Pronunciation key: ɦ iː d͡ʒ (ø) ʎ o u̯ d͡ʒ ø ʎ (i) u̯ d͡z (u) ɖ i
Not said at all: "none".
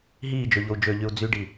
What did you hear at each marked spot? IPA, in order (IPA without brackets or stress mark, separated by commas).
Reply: ø, y, y